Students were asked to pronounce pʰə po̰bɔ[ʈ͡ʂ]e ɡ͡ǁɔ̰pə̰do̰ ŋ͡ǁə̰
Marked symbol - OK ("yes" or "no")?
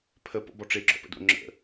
yes